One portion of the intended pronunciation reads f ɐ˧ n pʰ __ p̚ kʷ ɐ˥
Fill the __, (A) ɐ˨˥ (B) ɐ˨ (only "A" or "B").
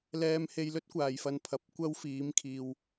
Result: A